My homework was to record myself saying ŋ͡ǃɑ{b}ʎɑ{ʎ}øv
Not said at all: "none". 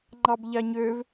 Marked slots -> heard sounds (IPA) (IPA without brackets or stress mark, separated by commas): b, ɲ